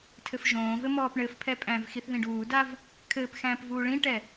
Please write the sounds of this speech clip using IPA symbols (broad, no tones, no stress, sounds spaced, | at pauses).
tʰ ɘ f ʒ õː v ɘ m ɔː p ɳ ɘ f pʰ ɛ pʼ æ̃ v x i θ ð ĩ ɖ uː d a v | kʰ ɘː p x æ̃ː p v uː ɭ ĩ ʈ ɛ